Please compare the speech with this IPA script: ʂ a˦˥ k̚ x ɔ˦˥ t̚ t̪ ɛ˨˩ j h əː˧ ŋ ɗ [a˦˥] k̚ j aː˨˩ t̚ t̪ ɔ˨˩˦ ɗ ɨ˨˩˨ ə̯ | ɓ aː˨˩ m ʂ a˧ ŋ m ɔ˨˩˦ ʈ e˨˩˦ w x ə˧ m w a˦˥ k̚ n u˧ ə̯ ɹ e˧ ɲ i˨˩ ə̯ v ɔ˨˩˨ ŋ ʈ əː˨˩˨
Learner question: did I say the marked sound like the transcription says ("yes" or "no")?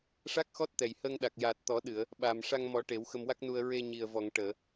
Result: no